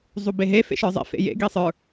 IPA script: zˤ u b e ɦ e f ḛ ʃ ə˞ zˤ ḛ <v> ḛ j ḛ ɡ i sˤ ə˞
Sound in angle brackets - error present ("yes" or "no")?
yes